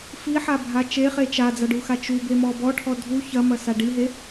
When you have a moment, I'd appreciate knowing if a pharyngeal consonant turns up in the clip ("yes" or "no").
yes